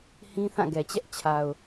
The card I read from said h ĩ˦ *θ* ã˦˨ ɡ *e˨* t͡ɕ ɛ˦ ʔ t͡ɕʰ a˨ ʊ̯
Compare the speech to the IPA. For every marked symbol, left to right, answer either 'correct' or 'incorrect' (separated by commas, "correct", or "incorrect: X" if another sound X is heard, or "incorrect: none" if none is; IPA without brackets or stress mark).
correct, incorrect: ɛ˨